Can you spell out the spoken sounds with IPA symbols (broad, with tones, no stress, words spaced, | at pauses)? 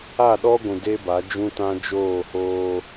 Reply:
a˦˨ɗɔ˦ɡʷũ˨ de˦ba˨˦d͡ʒũ˦tã˦ d͡ʒoː˦˨hoː˦